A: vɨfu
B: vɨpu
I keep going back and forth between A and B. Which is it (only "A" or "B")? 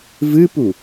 B